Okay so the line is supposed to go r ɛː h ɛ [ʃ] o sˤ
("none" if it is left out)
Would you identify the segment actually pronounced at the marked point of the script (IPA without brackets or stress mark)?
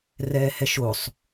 ʃ